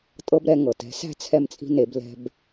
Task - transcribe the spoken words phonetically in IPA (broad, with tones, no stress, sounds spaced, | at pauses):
tʼ ɤ˦ b ɾ ɛ˨˦ ŋ ɤ˩ t ɛ̤˨˦ s æ̤˦ t͡sʰ ɛ˦ m t͡sʼ i̤˦ n e˨˦ b l ɛ̤˦ b